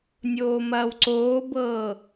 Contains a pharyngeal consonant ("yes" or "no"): no